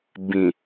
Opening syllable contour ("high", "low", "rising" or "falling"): low